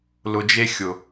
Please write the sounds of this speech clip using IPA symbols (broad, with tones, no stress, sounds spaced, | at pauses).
l ʊ˨ d͡ʒ e˦ xʲ ʊ˨